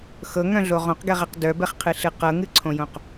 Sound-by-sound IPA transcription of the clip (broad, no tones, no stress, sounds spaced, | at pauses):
x ɤ ŋ œ̃ ɮ o ʁ õ q ɡ ɛ ʁ ɛ q d œ b ɛ χ qʰ ɨ ɬ ɨ q ɤ ŋ ɨ ǀʰ õ j õ q